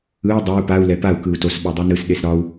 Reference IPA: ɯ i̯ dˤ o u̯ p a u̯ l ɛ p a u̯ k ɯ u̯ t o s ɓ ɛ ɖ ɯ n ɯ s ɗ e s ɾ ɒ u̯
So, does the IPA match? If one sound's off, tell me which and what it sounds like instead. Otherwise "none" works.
ɖ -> dˤ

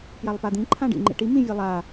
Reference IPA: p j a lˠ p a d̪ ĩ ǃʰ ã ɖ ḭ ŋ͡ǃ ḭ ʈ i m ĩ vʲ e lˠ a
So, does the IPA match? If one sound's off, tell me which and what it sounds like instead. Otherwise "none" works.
none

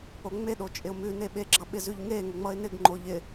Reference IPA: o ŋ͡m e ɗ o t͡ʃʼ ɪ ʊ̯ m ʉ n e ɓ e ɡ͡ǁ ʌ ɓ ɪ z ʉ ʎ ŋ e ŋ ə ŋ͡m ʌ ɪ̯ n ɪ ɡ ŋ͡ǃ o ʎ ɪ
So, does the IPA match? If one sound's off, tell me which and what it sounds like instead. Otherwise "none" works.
none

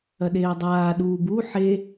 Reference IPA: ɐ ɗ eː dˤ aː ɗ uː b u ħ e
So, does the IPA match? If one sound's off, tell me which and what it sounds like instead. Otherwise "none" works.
none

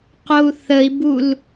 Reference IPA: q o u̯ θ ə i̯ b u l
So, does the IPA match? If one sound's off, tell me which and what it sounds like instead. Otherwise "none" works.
none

